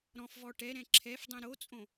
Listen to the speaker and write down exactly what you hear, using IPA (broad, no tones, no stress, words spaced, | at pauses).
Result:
ɾɔ̃fvɔ ʈɛɾɛ̃ ǁʰɛfdˤĩ ɾot͡sʼõ